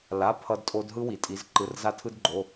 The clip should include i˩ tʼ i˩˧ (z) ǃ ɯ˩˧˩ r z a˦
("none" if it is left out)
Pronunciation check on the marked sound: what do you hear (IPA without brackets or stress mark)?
z